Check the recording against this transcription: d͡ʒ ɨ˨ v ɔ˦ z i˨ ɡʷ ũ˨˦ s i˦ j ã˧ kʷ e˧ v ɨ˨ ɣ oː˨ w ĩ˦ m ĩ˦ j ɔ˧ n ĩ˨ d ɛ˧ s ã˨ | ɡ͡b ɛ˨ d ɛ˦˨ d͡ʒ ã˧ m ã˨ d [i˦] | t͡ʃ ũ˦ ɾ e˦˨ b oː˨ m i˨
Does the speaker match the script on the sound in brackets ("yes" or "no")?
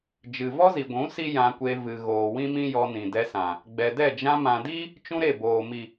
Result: yes